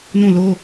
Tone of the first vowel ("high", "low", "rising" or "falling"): falling